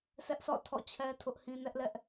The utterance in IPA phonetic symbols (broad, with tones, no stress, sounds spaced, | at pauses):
sʰ ɛ˦ ʔ s ɔ̰˦˨ tʰ ɔ̰˦˨ t͡ɕʰ ɛ˦ tʰ ʊ˦ ʔ h ĩ˦ n ɛ˦ ʔ l ɛ˦ ʔ